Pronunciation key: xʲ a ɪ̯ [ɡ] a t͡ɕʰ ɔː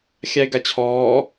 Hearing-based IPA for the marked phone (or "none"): ɡ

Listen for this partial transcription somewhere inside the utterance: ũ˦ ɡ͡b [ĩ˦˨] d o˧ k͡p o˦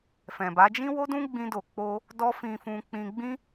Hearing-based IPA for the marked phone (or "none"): ĩ˦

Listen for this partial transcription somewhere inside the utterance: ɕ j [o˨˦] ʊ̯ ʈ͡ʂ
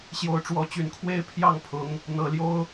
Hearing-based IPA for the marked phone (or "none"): o˨˦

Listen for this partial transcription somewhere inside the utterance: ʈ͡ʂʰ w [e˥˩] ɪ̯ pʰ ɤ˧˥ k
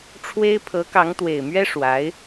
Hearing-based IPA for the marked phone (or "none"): e˥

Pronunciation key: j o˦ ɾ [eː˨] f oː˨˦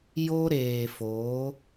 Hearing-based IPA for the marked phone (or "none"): eː˨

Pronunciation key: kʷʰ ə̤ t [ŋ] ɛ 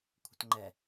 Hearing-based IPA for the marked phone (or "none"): ŋ͡ǃ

